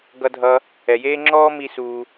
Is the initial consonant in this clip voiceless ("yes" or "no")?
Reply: no